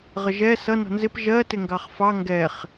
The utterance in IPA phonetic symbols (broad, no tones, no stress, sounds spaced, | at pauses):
ʁ ə ʒ ɛ s ʌ n ɔ̤ n z ɪ p ʒ ɜ t ɪ ŋ ɡ ɑ χ f ɑ ŋ ɡ ɛ χ